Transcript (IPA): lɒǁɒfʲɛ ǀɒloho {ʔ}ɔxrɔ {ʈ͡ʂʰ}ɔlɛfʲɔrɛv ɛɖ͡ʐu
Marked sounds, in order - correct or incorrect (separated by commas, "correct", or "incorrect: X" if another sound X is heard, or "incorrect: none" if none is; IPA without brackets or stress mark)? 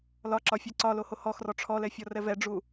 incorrect: h, correct